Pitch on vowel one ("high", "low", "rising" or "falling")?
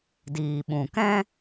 low